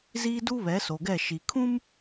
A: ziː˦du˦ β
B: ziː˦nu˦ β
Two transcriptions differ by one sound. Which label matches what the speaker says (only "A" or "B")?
A